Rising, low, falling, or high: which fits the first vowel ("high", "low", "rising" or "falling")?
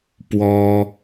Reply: high